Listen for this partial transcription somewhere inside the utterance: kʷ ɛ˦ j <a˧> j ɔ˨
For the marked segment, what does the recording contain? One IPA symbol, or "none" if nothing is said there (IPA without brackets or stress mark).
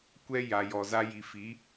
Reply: a˨